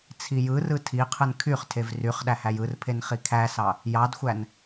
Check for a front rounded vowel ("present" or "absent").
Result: present